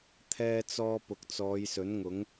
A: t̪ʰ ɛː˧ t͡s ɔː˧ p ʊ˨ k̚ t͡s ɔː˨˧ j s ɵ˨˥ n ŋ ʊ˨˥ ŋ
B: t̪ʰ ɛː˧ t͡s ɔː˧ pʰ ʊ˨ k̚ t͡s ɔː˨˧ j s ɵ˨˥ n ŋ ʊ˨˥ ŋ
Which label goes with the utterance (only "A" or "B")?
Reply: A